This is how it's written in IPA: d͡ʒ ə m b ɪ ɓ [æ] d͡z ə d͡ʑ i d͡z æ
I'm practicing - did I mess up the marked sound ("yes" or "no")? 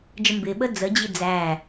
yes